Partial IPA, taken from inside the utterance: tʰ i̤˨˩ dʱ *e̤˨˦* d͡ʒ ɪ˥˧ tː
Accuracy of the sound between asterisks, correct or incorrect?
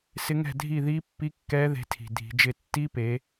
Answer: incorrect: i̤˨˦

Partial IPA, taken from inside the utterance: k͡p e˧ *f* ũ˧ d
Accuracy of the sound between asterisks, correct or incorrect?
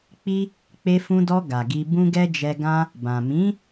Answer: correct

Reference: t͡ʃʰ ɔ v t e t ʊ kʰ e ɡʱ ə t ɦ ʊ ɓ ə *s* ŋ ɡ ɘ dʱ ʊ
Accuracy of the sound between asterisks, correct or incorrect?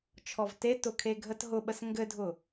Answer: correct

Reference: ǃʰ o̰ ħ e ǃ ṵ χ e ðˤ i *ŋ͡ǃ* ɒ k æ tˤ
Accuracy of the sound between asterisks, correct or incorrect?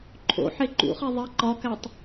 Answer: incorrect: ǃ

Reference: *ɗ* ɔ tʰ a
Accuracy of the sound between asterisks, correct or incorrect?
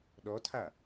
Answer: correct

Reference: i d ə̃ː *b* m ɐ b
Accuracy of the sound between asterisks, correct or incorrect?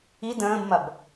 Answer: correct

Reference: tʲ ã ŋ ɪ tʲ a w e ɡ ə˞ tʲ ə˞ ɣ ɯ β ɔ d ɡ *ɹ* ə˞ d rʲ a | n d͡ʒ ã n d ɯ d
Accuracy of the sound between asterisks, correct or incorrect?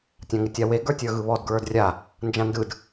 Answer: correct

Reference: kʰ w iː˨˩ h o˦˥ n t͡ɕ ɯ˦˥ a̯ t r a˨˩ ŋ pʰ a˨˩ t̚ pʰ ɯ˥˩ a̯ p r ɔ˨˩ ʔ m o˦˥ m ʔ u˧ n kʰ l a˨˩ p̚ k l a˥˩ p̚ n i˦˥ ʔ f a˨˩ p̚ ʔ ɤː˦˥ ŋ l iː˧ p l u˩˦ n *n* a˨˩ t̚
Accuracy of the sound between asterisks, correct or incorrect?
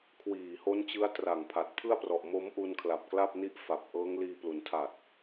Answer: incorrect: tʰ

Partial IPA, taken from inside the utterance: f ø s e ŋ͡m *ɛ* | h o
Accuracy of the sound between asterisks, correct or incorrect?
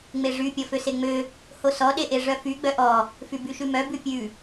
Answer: incorrect: ø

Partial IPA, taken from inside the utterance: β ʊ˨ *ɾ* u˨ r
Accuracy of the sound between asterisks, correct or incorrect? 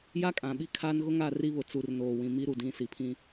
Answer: incorrect: t͡s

